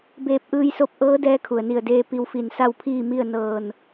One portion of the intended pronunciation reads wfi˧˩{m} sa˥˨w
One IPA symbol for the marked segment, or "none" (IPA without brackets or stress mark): n